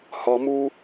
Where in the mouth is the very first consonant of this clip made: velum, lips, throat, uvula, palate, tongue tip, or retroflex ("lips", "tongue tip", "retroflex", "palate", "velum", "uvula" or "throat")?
throat